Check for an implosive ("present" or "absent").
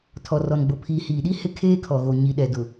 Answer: present